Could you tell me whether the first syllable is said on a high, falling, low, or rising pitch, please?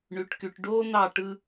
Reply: low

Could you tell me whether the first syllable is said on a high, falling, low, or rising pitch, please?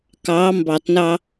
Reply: rising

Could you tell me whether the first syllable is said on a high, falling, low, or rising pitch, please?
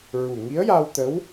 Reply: low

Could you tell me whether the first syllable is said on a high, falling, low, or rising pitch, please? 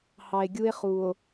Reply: low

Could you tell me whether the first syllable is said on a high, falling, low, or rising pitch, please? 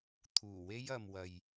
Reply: low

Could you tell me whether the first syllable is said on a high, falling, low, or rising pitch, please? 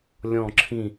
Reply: falling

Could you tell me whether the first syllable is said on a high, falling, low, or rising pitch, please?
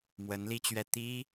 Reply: rising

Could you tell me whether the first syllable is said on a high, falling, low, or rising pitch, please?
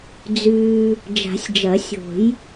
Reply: low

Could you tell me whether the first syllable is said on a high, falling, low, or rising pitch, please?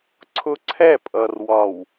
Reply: high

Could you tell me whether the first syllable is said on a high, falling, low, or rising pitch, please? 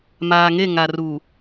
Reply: low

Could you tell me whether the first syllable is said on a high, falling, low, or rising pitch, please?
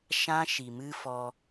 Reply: high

